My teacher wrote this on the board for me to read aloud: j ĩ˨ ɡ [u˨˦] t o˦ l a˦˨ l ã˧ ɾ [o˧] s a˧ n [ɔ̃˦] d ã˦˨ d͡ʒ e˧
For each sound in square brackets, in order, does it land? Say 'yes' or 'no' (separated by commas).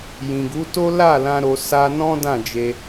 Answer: yes, yes, yes